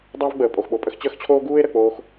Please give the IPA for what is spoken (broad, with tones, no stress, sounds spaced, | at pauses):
dˤ a˥ v ɡ͡b əː˩ pʼ o˩ x ɓ o˩ pʼ ə˧ x t͡ɕ əː˥ x t͡ɕʰ oː˥ ɡ uː˥ e̯ ɾ ə˩ k͡p oː˧ x